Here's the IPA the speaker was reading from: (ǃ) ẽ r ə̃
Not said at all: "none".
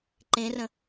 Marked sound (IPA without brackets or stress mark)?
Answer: ǃ